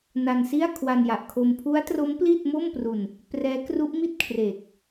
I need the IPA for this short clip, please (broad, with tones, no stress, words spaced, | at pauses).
na˧nsi˥˩a̯ kʰwa˧nja˨˩ʔkʰo˧m pʰu˦˥a̯tro˦˥m pli˥˩t̚mo˥˩mpru˧n | prɛː˦˥kru˦˥ʔmi˥˩t̚ kʰre˨˩k̚